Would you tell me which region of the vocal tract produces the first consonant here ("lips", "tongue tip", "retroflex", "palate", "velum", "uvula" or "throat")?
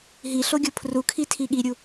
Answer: throat